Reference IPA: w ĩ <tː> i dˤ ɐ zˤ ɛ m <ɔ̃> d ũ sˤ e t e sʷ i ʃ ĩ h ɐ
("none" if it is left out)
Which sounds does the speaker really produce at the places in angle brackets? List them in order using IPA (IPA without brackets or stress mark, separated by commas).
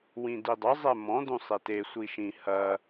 d, ɔ̃